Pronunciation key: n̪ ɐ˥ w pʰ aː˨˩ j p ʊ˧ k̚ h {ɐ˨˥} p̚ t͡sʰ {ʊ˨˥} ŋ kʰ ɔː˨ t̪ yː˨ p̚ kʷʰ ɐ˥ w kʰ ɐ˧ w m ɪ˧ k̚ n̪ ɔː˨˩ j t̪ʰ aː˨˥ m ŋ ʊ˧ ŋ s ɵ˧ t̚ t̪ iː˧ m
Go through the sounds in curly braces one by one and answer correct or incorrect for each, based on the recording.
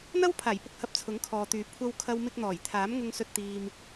correct, correct

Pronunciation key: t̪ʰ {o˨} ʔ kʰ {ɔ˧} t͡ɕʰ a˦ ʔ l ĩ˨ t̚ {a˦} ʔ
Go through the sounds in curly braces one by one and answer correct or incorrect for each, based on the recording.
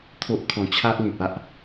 incorrect, incorrect, correct

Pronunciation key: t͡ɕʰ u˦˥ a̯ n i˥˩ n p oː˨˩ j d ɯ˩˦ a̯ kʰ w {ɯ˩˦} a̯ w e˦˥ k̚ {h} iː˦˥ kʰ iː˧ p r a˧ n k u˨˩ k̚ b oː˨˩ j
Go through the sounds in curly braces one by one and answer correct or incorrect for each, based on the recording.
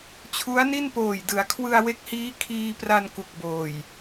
incorrect, correct

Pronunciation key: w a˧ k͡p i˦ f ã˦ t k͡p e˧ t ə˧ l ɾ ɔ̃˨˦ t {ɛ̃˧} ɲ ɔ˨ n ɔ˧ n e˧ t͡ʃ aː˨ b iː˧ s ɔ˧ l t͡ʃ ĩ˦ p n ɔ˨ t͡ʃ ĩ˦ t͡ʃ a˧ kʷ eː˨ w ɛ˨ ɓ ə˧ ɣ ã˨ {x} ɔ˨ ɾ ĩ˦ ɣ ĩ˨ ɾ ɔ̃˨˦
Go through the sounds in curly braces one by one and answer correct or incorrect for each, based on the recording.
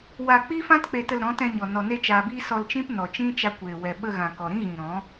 correct, incorrect

